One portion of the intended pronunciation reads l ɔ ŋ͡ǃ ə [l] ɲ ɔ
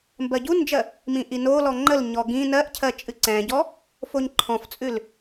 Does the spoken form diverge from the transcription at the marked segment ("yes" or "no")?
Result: no